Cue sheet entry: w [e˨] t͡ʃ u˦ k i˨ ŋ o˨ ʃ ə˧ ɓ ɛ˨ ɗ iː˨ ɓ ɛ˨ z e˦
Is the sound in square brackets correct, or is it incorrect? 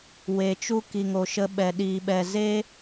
correct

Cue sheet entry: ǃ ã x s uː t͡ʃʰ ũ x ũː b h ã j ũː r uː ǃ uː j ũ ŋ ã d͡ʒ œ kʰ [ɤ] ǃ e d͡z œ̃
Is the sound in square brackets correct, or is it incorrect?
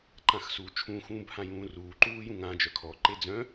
incorrect: ɔ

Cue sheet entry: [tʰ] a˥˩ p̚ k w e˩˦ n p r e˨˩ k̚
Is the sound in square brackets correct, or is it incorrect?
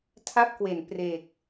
correct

